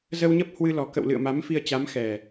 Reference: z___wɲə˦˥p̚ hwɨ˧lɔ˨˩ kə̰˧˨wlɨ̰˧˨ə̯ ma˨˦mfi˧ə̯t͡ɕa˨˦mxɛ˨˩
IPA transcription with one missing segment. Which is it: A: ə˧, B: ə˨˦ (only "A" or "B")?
A